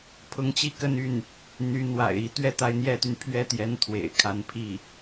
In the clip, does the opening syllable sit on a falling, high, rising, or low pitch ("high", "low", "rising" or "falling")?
rising